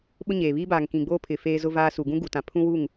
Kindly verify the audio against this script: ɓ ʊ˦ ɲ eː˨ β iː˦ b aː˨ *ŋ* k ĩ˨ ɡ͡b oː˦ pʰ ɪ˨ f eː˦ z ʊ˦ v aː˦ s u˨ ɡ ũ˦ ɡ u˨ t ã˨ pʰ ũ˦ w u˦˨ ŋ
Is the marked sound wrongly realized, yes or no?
no